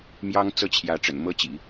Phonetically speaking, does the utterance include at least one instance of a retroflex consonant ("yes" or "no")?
yes